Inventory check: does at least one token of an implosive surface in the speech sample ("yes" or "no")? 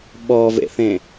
yes